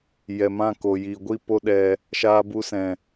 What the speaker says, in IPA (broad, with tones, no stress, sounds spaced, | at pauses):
j ɛ˨ m ã˦˨ k o˨ j i˨ ɡʷ i˦˨ p o˦ ɗ ɛ˧ | ʃ aː˧ b u˧ s ɛ̃˨